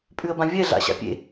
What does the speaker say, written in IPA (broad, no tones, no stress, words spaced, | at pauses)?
pʼʉə̯bãvʲɛ ɮa̰ɕa̰pʲḛ